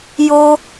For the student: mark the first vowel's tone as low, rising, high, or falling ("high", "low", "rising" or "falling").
high